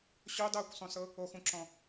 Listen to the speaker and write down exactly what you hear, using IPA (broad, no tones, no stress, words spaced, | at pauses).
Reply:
ɕodˤɤːkʷsˤũsɤ | oxũǁɔ̃